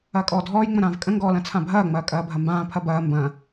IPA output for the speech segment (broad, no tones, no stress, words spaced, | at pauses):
ɐːkʼɔːdʱɔːj ŋ͡mə̃ɾãːvkʼə̃ ŋɡɔːlɐ̃t͡sʰãbʱɐː ŋ͡mɐːkʼɐːbʱɐmbãː pʰɐbɐː mbɐ̃